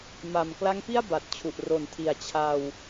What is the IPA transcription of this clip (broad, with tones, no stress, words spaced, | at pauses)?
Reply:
ma˨˩m kla˦˥ŋpi˥˩a̯ ba˨˩t̚t͡ɕʰu˨˩ʔ ro˩˦ntʰi˨˩a̯ t͡ɕʰa˧w